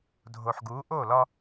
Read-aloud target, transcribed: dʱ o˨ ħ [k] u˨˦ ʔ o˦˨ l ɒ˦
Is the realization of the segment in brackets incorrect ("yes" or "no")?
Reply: yes